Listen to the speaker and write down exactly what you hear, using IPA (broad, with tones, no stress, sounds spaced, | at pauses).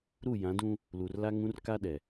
ɾ u˦˨ j ã˨˦ d ũ˦ | l u˨ r l a˦ ŋ ũ˦ r k a˦ ɗ ɛ˨